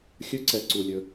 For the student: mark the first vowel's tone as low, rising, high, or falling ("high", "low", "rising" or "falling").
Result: high